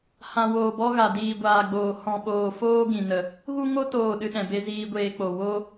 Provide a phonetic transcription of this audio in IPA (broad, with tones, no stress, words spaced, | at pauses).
hã˨woː˨bɔ˧ ɣa˨diː˨ɡʷaː˨ɡ͡boː˨ hɔ̃˨ɓoː˨foː˦ ɡĩ˨nə˨ | ɣu˦ŋo˦ toː˦˨ɗɨ˦ɗɛ̃˨be˦ ziː˧ɡʷeː˧ k͡po˨ wo˦